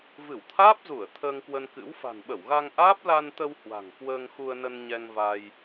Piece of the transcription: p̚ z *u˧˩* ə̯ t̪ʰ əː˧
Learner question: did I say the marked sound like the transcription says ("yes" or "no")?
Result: yes